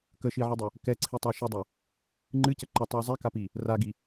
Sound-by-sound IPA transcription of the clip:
k ə ʃ i ʕ i dˤ ə | k ɛ ǀʰ i tˤ a ʃ ɨ dˤ æ | ŋ͡ǃ ɨ c ə ǃ ə tˤ ɨ ə̯ zˤ ɛ k a p i | r a ɡ i

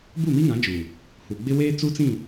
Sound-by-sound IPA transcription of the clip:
b u˦˨ m i˦ ŋ ã˨˦ d͡ʒ uː˨ | h u˨ ɡ͡b ɪ˦ w eː˦ t͡s u˦ t͡s ĩ˦˨

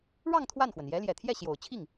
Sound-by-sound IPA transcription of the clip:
ɻ ɑ˥˧ ŋ t̪ʰ w a˥˩ n x w ə˩ n j ɛ˧˥ l j ɛ˨˩ t̪ʰ j ɛ˥˩ ɕ j o˨˩ ʊ̯ t͡ɕʰ i˥˩ ŋ

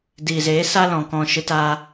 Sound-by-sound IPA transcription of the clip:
d iː˨ z eː˨˦ s a˦ l ɔ̃˨ k ɔ̃˦˨ ʃ ɨ˦ t aː˦

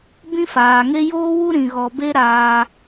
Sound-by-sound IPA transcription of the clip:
b ĩ˦ f aː˨ ŋ e˦ j oː˦ w u˦ ɾ ĩ˧ ɣ ɔ˧ b e˦ ɾ aː˧

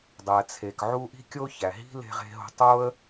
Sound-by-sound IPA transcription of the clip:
dˤ æ˩ t͡sʰ e˩ k ʕ u˥ ʔ i̤˥ kʲ o˥ ç æ˩ ɦ i̤˥ l e̤˥ ʁ e̤˥ ɦ o̤˥ tˤ o˥ ə̯

